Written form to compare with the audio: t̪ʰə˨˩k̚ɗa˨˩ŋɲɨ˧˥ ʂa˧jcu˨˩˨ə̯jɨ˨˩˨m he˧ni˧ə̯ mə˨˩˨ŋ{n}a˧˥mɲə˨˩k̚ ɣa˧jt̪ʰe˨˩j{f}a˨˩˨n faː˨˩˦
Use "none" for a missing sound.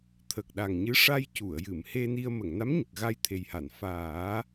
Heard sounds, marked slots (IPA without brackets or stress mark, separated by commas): n, h